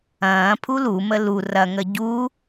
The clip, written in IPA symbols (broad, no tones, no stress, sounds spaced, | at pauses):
ɐ̃ː pʰ u l u m ə l u r ɐ ŋ ə ɟ u